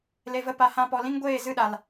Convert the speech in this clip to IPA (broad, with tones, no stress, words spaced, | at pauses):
le˨və˧ pa˨hã˧ pɔ˨lĩ˦ŋɡʷeː˦˨ zɨ˦˨ɗa˨l